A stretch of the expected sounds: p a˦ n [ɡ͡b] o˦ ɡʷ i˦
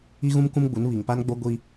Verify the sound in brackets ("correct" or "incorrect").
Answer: correct